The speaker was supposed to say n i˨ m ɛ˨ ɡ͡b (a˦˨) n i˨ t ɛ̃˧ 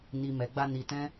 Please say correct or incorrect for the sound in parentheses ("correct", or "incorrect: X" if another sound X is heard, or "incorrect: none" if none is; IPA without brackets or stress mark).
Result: incorrect: a˧